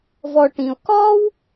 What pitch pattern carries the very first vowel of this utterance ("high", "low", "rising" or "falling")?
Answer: low